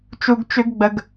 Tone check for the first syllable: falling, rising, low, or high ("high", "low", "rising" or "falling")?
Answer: low